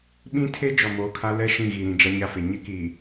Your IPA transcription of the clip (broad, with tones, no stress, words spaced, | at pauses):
ɓĩ˦tʰe˦ d͡ʒɔ˨moː˨kʰa˦ lɛ˦ ʃĩ˦˨ɣi˨ɾĩ˨ d͡ʒa˦ɲa˦fe˨ ɲɪ˦kiː˨